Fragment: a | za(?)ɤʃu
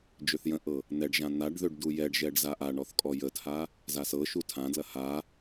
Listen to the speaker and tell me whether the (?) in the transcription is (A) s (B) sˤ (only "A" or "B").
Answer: A